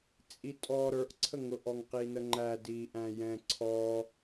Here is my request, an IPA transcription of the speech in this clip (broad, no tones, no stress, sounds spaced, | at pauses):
t͡sʼ i tʼ ɔ ɾ ə˞ ʔ ǀʰ ə ŋ ʊ ʔ ɔ ŋ q i n ə ŋ͡ǃ æ d iː ʔ æ̃ j ɛ̃ ǀʰ ɔ